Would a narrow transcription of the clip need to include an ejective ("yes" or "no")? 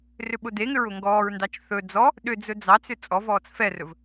yes